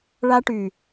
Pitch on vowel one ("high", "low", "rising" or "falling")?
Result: high